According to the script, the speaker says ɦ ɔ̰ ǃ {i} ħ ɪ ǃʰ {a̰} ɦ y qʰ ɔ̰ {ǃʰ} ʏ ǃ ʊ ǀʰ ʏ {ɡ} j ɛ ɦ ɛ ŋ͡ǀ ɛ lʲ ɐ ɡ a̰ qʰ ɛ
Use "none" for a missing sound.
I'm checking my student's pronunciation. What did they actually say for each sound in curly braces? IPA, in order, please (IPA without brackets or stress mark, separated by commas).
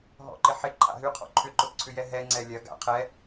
ɪ, a̰, ǃʰ, none